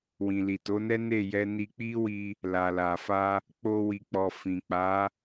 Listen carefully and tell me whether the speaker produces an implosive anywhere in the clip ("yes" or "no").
no